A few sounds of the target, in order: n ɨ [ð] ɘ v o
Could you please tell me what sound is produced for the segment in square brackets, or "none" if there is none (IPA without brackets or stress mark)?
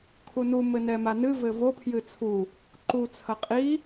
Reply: v